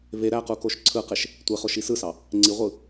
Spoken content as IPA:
v e ɾ æ q u k o ʃ ǀʰ ɯ q e ʃ | tʷ e χ o ʃ i s ɯ s ɑ | ŋ͡ǀ i ʁʷ ɯ

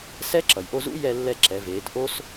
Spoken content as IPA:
s ɛ˧˥ ǁ ʌ˩ j ʔ o˧ z ṵ˧˥ j ɛ˧ lː ɛ˧ ǁ ɛ˩˧ v eː˩˧ t ʔ o˥ s

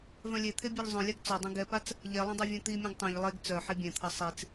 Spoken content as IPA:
v œ̃ lʲ e t̪ʰ e bʲ œ ʎ zˤ œ̃ lʲ a ɡ t͡s ɔ dˤ œ̃ ɡ ɛ p a t͡s | ʎ ɛ lˠ œ̃ dˤ e vʲ œ̃ t̪ i mʲ œ̃ ɡ tˤ œ̃ ʎ lˠ e ɡ t͡s œ ħ i bʲ ɛ̃ t̪ʰ ʌ sˤ i t͡s

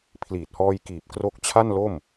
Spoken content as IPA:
pʰ l iː˨˩ t̚ h ɔː˧ j k iː˨˩ p̚ k r o˦˥ k̚ t͡ɕʰ a˥˩ n l o˥˩ m

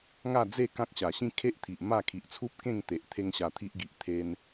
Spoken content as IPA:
ŋ a˥˧ d͡z e˥˧ k ã˦ k̚ ɕ a˨˩ ɕ ĩ˥˧ kʰ e˦ ʔ t̪ʰ i˨ ʔ m a˥˧ kʰ i˨ ʔ t͡sʰ u˦ p̚ k ẽ˥˧ ŋ t̪ e˨ ʔ t̪ʰ e˦ ŋ ɕ a˧ t̪ʰ i˦ ʔ ɡ i˨ ʔ t̪ʰ e˧ n

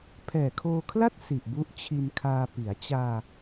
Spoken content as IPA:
pʰ ɛː˨˩ kʰ oː˧ kʰ l a˥˩ t̚ s i˨˩ ʔ b u˦˥ ʔ t͡ɕʰ i˧ n kʰ aː˧ p i˩˦ a̯ t͡ɕ aː˧

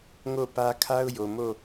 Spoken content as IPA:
ŋ o˦˨ p ä˦ kʰ a˦ ʊ̯ j o˨ m o˦˨

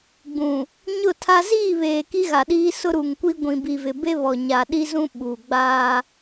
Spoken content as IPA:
ɡ͡b ũ˨ | ɲ ʊ˦˨ tʰ a˦ z iː˦˨ β eː˨ k i˦ ɣ a˨ ɗ iː˦ s ʊ˦ ɾ u˨ ŋ kʷ i˦ ɡʷ ĩ˨ b i˨ v ɪ˨ b e˦ β ɔ˨ ɲ a˨ ɗ i˦ z ũ˦ ɓ u˨ ɡ͡b a˦

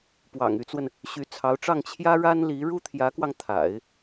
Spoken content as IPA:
p w ɑ̰˨˩ ŋ y˧˥ t͡s w ə˧ n | ɕ y˧˥ t͡sʰ ɑ˧˥ ʊ̯ ʈ͡ʂ ɑ˥˩ ŋ t͡ɕʰ j ä˥ ɻ a˥ n l i˧˥ ɻ u˥ t̪ʰ j ä˧˥ k w ɑ˧ ŋ t̪ʰ a̰˨˩˦ ɪ̯

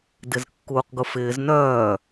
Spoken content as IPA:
d ɪ z kː uː q ɡ ʊ f ɪː z n œː

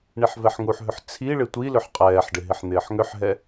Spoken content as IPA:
ɳ i ħ v ɛ ħ ŋ u ħ ɦ ʏ ħ t͡sʰ i ɭ ɪ tʷ i l ʏ ħ qʼ ɛː ħ ɖ ɪ ɦ ɪ ħ n̪ ɪː ħ ŋ ʏ ħ ɦ ɛ

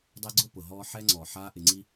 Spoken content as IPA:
dˤ ɛ˦ ɡ͡ǀ ʊ˥ p ʊ˩ ɦ ɔː˥ ħ ɛ˥ ŋ͡ǀ ɔ˩ ħ aː˦ ʔ ɪ˨ ŋ͡ǀ i˦

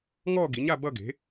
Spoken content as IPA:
ŋ ɔ˥˧ ɡ i˩˥ ɲ a˥˧ b ʌ˥˧ ɡ e̤˩˥

